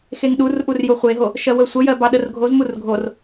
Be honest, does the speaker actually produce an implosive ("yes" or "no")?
yes